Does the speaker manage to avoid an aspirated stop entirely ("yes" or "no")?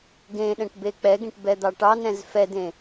yes